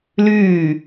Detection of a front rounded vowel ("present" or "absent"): present